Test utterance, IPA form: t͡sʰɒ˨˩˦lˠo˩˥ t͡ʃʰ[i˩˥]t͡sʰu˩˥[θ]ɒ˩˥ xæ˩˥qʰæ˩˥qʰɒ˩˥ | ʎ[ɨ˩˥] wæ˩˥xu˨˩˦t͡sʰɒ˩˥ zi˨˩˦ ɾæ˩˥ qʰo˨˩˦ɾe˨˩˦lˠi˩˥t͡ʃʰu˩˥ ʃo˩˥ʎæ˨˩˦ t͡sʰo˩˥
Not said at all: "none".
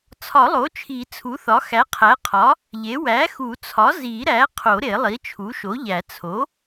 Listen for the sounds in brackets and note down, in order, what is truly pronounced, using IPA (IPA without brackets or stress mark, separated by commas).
i˨˩˦, θ, e˩˥